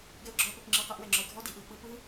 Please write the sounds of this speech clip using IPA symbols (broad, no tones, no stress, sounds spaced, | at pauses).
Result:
ɡ ɛ ʊ̯ ɡ͡ǁ ɔ ə̯ p ɛ p ŋ͡ǁ ɯ q ɛ ʔ w ɛ ŋ͡ǁ ɔ ɪ̯ ɡʱ ɔ d i ʔ ɯ ə̯ k͡p ɯ p ɯ